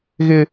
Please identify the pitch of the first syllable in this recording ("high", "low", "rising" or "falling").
high